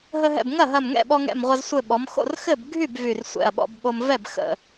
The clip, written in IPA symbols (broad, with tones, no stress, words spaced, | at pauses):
ɦə˧ɦɛ̰˧˩bŋɐ˥˩ɦɐ˧˩m ŋɛ̰˥˩ɓɔ˧ŋɛ̰˧˩mʁʷɐ˧z sʷɘ˧˩ɓɔ˩˧mxo̰˥˩r xɘ˥˩b ɡʱy˥˩b vy˧˩rsʷɛ̰˧˩ɐ̯ɓɔ̰˧bɓo˧m vɛ˥˩bxə̰˧˩